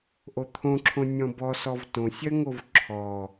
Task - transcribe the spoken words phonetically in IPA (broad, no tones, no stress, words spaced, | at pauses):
ʔot̪ʰõǁʰõ nʲɔ̃bɔsɔv tõsʲɜŋov ǁʰɔ